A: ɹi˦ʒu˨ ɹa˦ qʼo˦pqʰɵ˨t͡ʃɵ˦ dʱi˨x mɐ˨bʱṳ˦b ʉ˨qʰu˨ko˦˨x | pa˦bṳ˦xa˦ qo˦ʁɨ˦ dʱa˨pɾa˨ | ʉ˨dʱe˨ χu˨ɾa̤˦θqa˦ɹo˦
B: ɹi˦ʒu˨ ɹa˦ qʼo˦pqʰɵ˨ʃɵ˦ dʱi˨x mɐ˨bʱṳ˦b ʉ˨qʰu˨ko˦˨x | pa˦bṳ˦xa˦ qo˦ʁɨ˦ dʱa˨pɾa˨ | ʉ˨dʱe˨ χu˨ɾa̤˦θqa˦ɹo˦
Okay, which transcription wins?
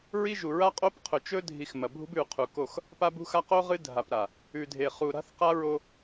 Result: A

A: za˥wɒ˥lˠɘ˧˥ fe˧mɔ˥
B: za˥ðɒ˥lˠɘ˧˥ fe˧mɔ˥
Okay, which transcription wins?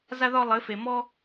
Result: B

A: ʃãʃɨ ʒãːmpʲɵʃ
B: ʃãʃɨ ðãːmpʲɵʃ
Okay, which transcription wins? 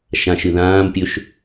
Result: B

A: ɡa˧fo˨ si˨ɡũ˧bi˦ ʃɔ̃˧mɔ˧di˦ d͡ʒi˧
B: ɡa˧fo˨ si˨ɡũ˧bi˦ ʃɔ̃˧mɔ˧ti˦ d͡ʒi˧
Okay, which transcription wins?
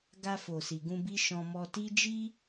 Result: B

